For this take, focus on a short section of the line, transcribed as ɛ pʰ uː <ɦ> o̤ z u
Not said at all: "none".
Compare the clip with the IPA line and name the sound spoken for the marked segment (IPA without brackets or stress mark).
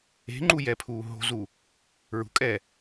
ɦ